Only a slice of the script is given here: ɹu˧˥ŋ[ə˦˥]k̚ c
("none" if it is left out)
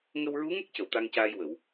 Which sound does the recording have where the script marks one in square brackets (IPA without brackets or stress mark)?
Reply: ə˦˥